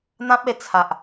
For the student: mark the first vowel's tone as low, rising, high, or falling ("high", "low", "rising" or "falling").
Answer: high